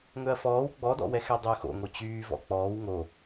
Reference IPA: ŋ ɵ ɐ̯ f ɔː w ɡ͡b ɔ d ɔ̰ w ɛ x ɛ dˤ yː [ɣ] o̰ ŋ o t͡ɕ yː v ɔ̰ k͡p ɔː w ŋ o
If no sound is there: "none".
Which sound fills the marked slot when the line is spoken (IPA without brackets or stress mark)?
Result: x